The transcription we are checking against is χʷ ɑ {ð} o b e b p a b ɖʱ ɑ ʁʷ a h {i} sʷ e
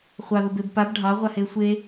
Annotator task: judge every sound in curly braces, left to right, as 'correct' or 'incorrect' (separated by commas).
correct, incorrect